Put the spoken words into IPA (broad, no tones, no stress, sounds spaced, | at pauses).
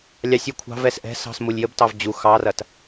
lʲ ɑ sʲ u kʷʰ ɑ̤ v ɛ s ʔ ɛ̤ s ɑ̤ s m u lʲ j ə b t ɑ v d͡ʑ u x ɑ r ɐ t